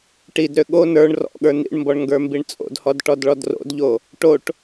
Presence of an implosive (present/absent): present